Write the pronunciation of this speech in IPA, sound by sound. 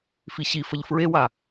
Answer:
f i ɕ i f ə ʎ f ɹ e w a

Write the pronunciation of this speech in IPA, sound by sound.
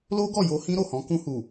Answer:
l o˦ ɡ ɔ˦˨ j o˧ h ĩ˦ ɾ o˦˨ h ɔ̃˨˦ k ũ˧ h u˨

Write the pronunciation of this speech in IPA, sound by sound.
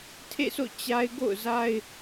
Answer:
tʰ ḛ˦˨ s o̰˦˨ t͡ɕ a˦ ɪ̯ ɡ o̰˦˨ ʊ̯ z a˦ ɪ̯

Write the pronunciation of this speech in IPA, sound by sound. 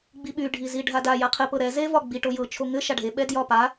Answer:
ɡ͡b i ɓ y ɖʱ i z i ɖʱ a d a j a qʰ ɘ p ɤ ɾ ɛ z e v ɒ ɡ͡b i ʈ o j ɤ t͡ʃʰ o ŋ ɘ ʃ a ɖʱ e ɓ ɛ d j ɒ p a

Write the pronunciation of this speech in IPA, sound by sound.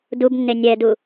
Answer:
d u b nː e nʲ ɛ d u

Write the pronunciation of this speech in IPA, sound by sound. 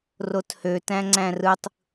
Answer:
r o t h ø t æ̃ ŋ͡ǀ æ̃ r ɯ tˤ

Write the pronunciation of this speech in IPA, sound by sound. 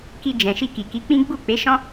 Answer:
k i˧ d͡ʒ ɛ̃˨ ʃ i˧ k i˨ k i˨˦ k͡p ĩ˦ ɡ͡b u˦˨ k͡p e˨˦ ʃ ɔ̃˦

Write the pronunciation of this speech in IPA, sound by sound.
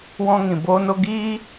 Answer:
w ɔ̃˧ ŋ ĩ˨ b oː˧ n o˧ ɡ iː˦

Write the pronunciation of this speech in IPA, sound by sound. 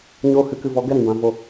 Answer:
ɲ oː˧ h ɨ˨ k ɨ˨ v ɔ˨ ɡ ɛ˦ ɾ ĩ˨ b ã˨ v o˨

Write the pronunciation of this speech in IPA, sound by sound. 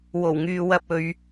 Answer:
w o˨˩ w ŋ yː˨ w ɐ˧ p̚ ɵ˨˧ ɥ

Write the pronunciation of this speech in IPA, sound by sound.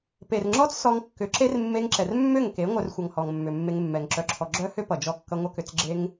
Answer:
p e˨ r ŋ͡ǁ ɔ˦ t͡s s ɔ˧ ŋ kː ʏ˨˦ ǁ e˦ r mː e˧ ŋ ǁ ɛ˨ r mː ʏ˦˨ ŋ k e˨˦ ŋʷ œ˧ r xʷ ʌ˨ ŋ h ɔ˨ ŋ mː ʏ˨ mː e˧ ŋ mː ɛ˨ ŋ ǁ œ˧ ǁʰ ɔ˧ ɡ͡ǁ œ˦ h ʏ˦ p ʌ˨ d͡ʒ ɔ˧ kː ʌ˧ ŋʷ ʌ˧ k ʏ˨ t͡s ɡ͡ǁ e˦ ŋ

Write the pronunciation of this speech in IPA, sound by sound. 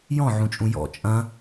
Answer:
j ɔ̃ ʕ ũ t͡ʃʼ ũ j ɔ̰ t͡ʃʼ ɐ̃

